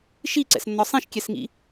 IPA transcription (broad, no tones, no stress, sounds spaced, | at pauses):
ʃ i ǀ ɛ̰ s nː ɒ sˤ ĩ ʃ kʲ ɛ s ŋ ḭ